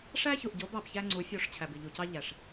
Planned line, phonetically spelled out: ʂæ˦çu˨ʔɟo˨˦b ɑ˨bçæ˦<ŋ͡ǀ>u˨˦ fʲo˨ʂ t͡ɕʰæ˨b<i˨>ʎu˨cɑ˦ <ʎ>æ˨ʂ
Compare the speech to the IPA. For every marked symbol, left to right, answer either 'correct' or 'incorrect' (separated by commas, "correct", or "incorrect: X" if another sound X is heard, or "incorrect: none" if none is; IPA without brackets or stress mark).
correct, correct, correct